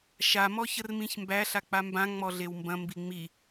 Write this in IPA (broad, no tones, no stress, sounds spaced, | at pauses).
ʃ a m ɔ ç ə r m ĩ ç m b æ ɬ a k͡p a m b ã ŋ͡m ɔ ɮ e w m b ɐ̃ m b i ŋ͡m i